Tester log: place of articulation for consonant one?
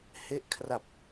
glottal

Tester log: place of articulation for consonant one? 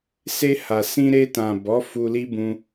alveolar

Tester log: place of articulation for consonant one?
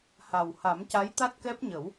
glottal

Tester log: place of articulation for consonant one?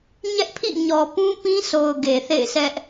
palatal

